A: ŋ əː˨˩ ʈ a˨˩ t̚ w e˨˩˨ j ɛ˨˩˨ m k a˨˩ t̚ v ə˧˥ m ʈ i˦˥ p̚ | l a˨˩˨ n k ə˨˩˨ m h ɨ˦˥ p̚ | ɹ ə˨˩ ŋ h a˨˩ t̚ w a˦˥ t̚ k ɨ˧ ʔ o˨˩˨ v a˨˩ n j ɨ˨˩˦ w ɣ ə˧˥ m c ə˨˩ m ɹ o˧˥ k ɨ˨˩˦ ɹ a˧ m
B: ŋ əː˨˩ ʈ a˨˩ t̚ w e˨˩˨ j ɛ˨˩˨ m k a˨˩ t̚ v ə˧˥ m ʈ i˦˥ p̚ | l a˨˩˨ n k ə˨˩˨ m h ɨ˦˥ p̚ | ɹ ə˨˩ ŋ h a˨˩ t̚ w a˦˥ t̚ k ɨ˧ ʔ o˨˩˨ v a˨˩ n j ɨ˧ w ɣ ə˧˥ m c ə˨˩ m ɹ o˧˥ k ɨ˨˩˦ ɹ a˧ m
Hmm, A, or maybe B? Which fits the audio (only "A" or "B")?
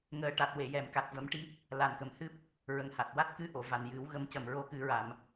A